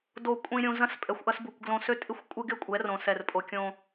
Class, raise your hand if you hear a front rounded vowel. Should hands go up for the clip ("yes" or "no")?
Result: yes